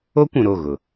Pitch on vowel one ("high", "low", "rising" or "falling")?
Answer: high